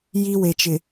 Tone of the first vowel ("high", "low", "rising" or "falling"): high